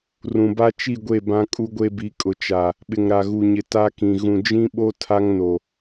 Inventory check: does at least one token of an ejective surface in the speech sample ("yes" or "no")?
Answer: yes